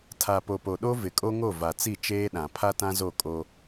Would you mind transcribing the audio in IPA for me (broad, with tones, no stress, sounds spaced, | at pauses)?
tʰ a˨ p o˨ p o˨ ɗ o˦ v ɪ˨ kʼ o˦ ŋ o˦˨ v a˨ t͡s i˦˨ t͡ʃ eː˦ ɗ ã˨ pʰ a˦ t ã˦ z o˦˨ kʼ o˦